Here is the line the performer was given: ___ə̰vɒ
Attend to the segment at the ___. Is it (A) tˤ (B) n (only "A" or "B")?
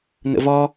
B